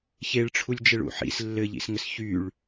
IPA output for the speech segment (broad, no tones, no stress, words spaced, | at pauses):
çeɭʈ͡ʂʰulʲd͡ʒɘɭṵ ħḭs lːɘʎḭsŋɘs çyɭ